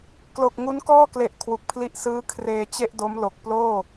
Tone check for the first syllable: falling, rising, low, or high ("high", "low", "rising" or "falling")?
low